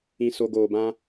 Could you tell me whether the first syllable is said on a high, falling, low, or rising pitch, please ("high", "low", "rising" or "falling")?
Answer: low